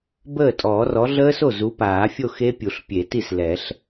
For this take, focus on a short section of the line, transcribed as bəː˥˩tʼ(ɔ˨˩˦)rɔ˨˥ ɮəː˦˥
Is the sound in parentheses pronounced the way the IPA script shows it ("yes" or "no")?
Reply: no